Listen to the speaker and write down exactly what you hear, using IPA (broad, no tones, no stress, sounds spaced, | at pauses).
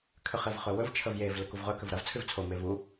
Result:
kʰ ʏ χ e v χ ɵ w ɵ v t͡ʃʰ ə v j e v l ɵ k u v ʁ ɵ k ʏ v ɾ ɐ v t͡sʰ ʉ v t͡sʰ o m e v u